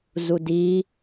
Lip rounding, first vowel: rounded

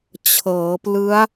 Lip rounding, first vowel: unrounded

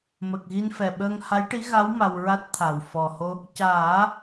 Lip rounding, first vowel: unrounded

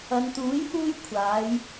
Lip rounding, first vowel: unrounded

